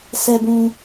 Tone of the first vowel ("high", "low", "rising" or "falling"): low